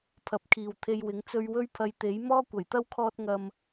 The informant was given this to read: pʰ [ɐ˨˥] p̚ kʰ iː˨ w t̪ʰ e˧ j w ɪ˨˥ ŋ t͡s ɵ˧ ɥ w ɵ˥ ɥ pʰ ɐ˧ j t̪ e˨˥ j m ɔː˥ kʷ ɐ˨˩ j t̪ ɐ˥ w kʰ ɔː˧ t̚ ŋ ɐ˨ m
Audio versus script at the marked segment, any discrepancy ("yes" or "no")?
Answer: no